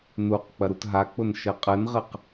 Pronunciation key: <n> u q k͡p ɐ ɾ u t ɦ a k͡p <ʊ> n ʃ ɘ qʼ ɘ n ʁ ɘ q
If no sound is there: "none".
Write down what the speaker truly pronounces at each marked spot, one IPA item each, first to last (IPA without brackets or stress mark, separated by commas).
n, ʊ